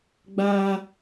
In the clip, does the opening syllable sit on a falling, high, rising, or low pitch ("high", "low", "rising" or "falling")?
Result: high